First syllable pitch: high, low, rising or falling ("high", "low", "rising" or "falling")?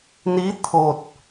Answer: rising